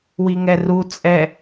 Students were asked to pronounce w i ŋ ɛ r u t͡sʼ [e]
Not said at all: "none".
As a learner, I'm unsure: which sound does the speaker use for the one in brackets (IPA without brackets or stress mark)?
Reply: ɛ